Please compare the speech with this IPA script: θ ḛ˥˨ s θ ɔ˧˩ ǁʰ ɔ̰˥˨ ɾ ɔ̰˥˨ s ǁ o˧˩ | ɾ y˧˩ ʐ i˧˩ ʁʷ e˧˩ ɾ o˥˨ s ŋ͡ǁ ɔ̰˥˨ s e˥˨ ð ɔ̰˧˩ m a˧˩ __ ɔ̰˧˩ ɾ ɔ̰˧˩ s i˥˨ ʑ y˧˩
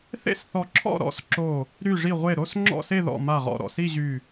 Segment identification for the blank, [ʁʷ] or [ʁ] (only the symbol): ʁ